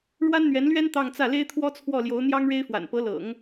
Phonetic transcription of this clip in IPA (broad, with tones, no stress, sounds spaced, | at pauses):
ɻ w a˥ n n̪ ɥ ɛ˧˥ n l ɥ ɛ˥ n t̪ ɑ˥˧ ŋ t͡s ä˥˩ l e˥ ɪ̯ t̪ʰ w ɔ˥ t͡sʰ w ɔ˥˩ l j o˧˥ ʊ̯ n̪ j ɑ˥ ŋ ɻ e˥ ɪ̯ f w a̰˨˩ n p ɤ˧˥ l ɤ̰˨˩˦ ŋ